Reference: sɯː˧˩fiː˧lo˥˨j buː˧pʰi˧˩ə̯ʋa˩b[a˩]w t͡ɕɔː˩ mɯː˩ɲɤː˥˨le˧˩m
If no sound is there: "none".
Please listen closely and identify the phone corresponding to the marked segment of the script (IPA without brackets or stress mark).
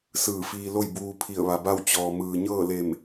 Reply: a˥˨